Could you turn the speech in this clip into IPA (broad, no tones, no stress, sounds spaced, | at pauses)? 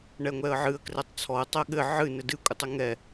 ɳ ɛ ŋʷ ɛ ə̯ ʕ ɨ ə̯ k r ɛ tˤ t͡sʰ ɔ ə̯ tˤ ɛ ɠ ɘ ʕ ɨ n ɘ d ɨ kʷʼ ɨ tˤ ɘ ŋ ɛ